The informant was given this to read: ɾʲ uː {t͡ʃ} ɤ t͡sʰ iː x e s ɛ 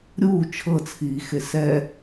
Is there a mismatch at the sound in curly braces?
yes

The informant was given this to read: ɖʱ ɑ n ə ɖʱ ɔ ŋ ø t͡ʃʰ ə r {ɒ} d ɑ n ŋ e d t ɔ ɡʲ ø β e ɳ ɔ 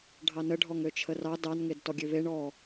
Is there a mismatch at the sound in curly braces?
yes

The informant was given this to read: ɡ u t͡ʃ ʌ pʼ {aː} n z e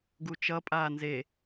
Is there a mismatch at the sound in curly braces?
no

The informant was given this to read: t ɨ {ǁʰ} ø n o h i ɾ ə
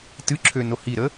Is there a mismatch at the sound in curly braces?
no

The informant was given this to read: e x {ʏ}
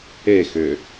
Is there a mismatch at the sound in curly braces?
no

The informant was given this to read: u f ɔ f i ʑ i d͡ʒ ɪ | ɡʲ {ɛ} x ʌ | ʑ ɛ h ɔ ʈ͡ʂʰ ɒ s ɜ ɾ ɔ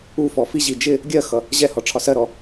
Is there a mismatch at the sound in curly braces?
yes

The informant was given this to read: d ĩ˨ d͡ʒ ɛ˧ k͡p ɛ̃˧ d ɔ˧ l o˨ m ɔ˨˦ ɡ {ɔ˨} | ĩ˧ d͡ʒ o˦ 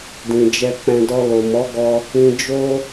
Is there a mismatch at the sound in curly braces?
yes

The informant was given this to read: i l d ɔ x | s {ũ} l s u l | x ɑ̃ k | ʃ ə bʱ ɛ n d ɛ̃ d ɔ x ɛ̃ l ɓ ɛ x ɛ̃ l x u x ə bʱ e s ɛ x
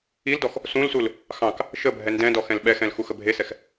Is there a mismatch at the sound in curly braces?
no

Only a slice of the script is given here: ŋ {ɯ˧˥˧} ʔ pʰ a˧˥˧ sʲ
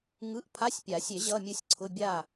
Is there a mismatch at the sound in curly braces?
no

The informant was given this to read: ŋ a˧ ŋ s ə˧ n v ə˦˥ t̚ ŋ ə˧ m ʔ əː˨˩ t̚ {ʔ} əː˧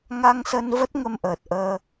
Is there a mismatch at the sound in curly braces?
no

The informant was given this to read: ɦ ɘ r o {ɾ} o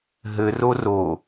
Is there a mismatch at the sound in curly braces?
yes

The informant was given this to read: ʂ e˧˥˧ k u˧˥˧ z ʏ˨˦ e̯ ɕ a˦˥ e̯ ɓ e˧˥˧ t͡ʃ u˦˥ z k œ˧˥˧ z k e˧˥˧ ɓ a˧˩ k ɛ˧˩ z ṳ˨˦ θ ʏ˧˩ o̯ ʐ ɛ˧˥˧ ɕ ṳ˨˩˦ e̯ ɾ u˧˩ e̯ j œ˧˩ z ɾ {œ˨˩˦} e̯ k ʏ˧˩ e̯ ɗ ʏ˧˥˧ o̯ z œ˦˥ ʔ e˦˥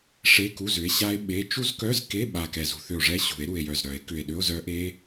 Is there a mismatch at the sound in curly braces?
no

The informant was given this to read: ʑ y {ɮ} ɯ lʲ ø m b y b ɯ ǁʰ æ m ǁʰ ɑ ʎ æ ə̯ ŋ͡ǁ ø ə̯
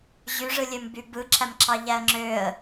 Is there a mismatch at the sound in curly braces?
yes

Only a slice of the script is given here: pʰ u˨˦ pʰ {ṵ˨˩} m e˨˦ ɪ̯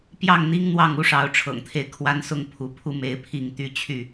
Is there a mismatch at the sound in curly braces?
yes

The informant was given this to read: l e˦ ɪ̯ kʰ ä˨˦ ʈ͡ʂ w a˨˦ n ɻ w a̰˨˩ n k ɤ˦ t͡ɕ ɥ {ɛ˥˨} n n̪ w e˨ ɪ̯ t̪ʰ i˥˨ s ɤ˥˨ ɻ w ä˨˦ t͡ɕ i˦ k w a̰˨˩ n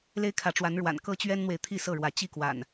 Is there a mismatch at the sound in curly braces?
yes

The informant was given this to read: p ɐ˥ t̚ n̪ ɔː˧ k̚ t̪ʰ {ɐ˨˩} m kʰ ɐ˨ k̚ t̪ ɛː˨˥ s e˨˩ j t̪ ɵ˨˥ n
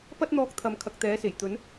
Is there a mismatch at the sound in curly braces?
yes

